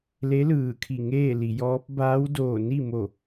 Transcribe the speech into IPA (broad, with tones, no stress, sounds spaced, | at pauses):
l e˧˥ l ɯː˧˩ kʰ i˧˩ ŋ eː˥˨ l i˩˧ j ɔː˧˥ p̚ b aː˧˥ w d oː˧˩ n i˥˨ m o˧˩